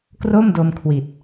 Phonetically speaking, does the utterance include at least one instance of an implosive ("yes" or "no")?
no